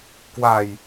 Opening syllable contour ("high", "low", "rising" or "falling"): low